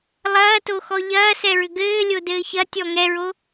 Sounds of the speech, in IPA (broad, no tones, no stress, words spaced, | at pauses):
lˠɐːtoxɔ ʎɐːsɛɹʏ ɡɘːlʲodɘː çɐtʲɔ ŋɛɹo